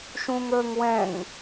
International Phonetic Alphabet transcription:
ʃ ũ ŋ ə˞ ŋ w ɛ̃ ŋ

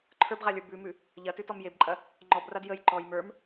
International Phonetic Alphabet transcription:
ǃʰ ə˞ b ʁ a lʲ ə˞ b ʉ m ʉ | ʎ ɐ t ʉ t ɔ m j e b ǃʼ ɐ | ŋ͡ǃ ɔ b r a d j ə j ǃ ɔ j m ə˞ m

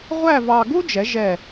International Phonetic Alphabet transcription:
ʁʷ æ˥˧ v ɑ˧ ɡ u˥ d͡ʒ ɛ˩˧ ʒ ɛ˧˩

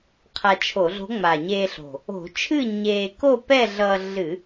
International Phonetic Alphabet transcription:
qʰ a˧ t͡ʃʰ o˧˩˧ ɮ o̤˧˥ ŋ͡m a˨˩ ɲ eː˧ ɬ o̤˨˩ | o̤˧˩˧ t͡ʃʰ ɨ˥˨ ɲ eː˧ k o˥˨ p ɛ˥˨ ɮ ʌː˧ ɮ ɨ˧˩˧

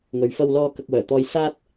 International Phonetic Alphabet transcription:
ŋ ɵ˨ ɥ f ɐ˧ w l ɔː˧ k ɐ˧ k̚ w œː˨˩ t̪ ɔː˧ j s aː˥ t̚

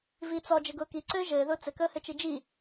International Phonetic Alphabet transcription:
v iː t͡s ɔ d͡ʒ ɘ ɡ ʊː k i ǀ ɘː ʒ ɘː ð ʊː t͡s ɘ k əː h ɘ t͡ʃ i d͡ʒ i

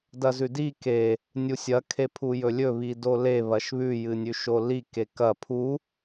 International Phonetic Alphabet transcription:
d ɐ z ʉ d i k e | nʲ u sʲ ɐ kʰ e pʰ u j ɵ lʲ ɵ β i d o l e β ɐ ʃ β ʉ j ɨ nʲ ʉ ʃ o l i k e k ɐ pʰ u

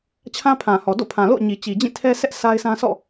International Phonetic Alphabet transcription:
t͡ɕʰ ã˦ pʰ ã˨ h ɔ˨ d o̰˦˨ pʰ ã˨ l o̰˦˨ ʊ̯ ɲ i˨ t͡ɕ i˨ d͡ʑ ĩ˦˨ tʰ ɛ˦ s ɛ˦ ʔ s a˦ ɪ̯ sʰ ã˦ sʰ ɔ̰˦˨

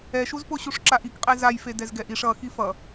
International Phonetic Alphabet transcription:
ɛ ʃ u z p o ɕ u ʂ ǁ a ʔ i k qʼ e z a j f e d ɛ z ɡ ɛ ʔ i ʂ ʌ x i f ʌ

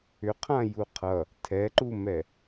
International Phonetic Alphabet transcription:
ʏ qʰ ã j u qʰ ʌ | tʰ ɛ ǃ u m ɛ

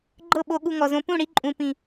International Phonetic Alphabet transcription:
ɡ͡ǃ ɤ˦˨ ɓ o˧ ɠ u˧ ŋ ɔ˨ z õ˧ p ũ˦˨ ɽ i˧ ǃʼ ũ˨ p ĩ˨

